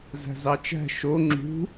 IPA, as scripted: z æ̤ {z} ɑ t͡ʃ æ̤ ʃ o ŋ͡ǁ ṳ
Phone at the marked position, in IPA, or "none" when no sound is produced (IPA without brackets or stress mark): z